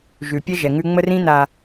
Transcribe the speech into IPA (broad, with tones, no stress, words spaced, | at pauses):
ʒʉ˨pʲɛ˦ ʒɛ˨ŋʉ˦ ŋ͡mə˦rĩ˦na˨